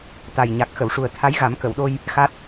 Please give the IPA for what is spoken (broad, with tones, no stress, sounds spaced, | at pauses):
t̪ a˨˩ j ɲ a˨˩ k̚ x ə˨˩˨ w ʂ u˨˩ ə̯ t̪ʰ a˧˥ j ɣ a˨˩˦ m k ə˨˩˨ w ɗ o˧ j | x a˦˥ t̚